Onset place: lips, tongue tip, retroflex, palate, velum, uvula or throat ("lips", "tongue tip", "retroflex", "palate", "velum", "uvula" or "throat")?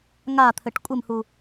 velum